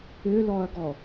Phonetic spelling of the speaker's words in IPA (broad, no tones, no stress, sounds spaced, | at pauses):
ʏ l ɔ ɐ̯ ɡ ɔ